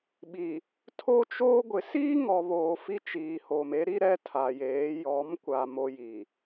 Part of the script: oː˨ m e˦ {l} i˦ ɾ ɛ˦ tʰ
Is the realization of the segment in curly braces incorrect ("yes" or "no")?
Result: yes